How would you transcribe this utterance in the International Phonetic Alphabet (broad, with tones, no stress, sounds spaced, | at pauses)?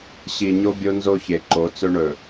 ɕ i˨ ɲ o˦ bʲ o˦ n z o˦ ç e˨ ǃ o˨˦ t͡s ɵ˦ ɳ ɵ˨